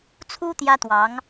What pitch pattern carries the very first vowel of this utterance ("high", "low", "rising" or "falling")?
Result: high